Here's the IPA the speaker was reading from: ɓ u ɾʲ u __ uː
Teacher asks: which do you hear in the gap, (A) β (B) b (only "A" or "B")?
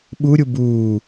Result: B